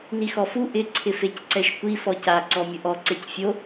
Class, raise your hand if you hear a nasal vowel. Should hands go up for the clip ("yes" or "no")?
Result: no